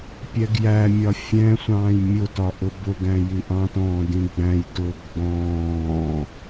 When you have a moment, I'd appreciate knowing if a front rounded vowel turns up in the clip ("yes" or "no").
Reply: no